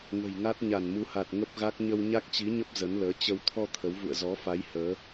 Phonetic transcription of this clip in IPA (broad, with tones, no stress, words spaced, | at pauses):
ŋə̤˨˩jŋa˦˥t̚ ɲa˧˩nmu˨˦ha˨˩t̚ ŋə˦˥p̚ɣa˦˥k̚ ɲə˧wɲa˦˥k̚t͡ɕi˨˦ɲə˦˥p̚ zə˨˦nləː˨˦ t͡ɕə˧w t̪ʰɔ˧ t̪ʰə˨˦wvṵ˧˨ə̯ zɔ˨˦fa˨˦j həː˨˦